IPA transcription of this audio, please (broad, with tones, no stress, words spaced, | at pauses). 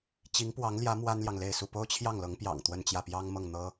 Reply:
t͡ɕi˧˥ŋpwɑ˧˥ŋljä˧˥ mwa˥nljɑ˨ŋle˥˧ɪ̯su˥˩ po˥ʊ̯t͡ɕʰjɑ˥˩ŋlɤ˧˥ŋpjɑ̰˨˩ŋ t̪wə˥˧nt͡ɕjä˥˩ pjɑ˥ŋmɤ˥˩ŋn̪ɤ˥